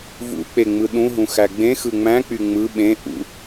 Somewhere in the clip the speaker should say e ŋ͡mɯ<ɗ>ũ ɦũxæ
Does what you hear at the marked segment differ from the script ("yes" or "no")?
no